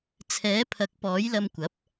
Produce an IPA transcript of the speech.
t͡sʰ ɛː˨˥ pʰ ɐ˨˥ k̚ p ɔː˨˥ j l ɐ˧ m kʷ ɐ˨˥ p̚

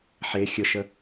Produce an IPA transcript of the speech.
ħ e xʲ ə ʃ ə

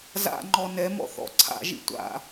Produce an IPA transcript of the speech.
z a̰ ŋ͡ǃ ɔ n ɛ m ɔ̰ θ ɔ̰ ǀʰ a̰ ʒ ḭ tʷ a̰

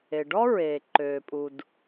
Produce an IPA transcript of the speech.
e˩ ɖ ɔ˥ ɹ eː˩ ǃ øː˩ pʼ u˩ d

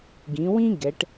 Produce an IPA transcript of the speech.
ɡ ĩ˩˧ w ĩ˥ ɡ ɛ˩˧ ʈ

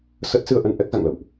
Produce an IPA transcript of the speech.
s ə˦˥ t̚ s ɨ˧ ə̯ ʔ ə˧ n ʔ ɛ˦˥ k̚ z a̰˧˨ ŋ l ə̰˧˨ w ʔ

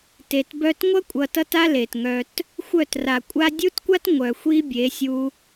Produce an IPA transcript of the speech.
t e˨ t b œ˧ t ŋʷ ʌ˦ kʷʼ ʌ˨ t ʌ˧ t a˦ l e˨ t ŋ œ˧ t | xʷ œ˦˨ t r a˨ kʷʼ a˦ dʲ u˦ t kʷ a˦ t ŋʷ œ˨ xʷ i˦ bʲ e˨˦ sʲ u˧

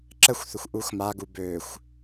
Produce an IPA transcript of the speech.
ǁ ə xʷ θ ʊ xʷ ʔ u x m a ɡ u b ø xʷ

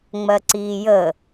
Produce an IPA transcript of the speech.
ŋ͡m ɜ ǀ iː j ə

